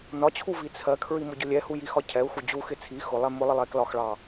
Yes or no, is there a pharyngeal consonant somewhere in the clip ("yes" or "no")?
no